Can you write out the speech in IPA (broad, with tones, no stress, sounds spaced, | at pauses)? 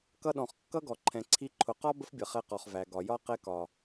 k ʌ˧ ɗ ɔ̃˨ χ kː ʌ˦ ɡ ɔ˨ ǃʰ ɛ̃˨ ǀʰ i˧ ǃʰ ʊ˨ q ɒ˦ b ə˦ f bʲ ʌ˨ χ ɛ˧ q ɔ˨ χ v æ˨ ɡ ɒ˨ j ɒ˦ q ɛ˧ k ɒ˨